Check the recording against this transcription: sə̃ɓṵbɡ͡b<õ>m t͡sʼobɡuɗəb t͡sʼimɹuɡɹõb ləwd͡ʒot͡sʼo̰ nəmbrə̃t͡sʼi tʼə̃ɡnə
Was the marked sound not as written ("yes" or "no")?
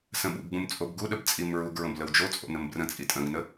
yes